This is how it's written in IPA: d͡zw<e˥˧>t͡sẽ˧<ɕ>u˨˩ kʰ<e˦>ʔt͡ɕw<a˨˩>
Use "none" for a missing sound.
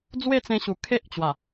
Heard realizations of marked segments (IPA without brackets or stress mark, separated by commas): e˥˧, ɕ, e˦, a˨˩